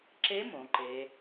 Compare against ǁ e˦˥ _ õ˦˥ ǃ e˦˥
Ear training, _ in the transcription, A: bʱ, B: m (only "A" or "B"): B